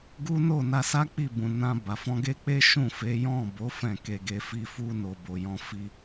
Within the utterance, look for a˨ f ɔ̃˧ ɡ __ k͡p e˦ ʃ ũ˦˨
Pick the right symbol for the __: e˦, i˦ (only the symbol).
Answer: e˦